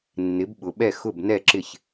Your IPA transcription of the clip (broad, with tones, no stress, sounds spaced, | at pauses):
nː ɪ˩˥ b ɓ ʊ˩ ɓ ɛ˥˩ x ʊ˥˩ b n ɛ˥˩ ǁ ɪ˥˩ ç